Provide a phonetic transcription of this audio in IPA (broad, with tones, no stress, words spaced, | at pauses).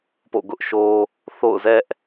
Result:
po̰˦˨ɡʊ˦ʔʃo˦ | θo̰˦˨ʊ̯zɛ˦ʔ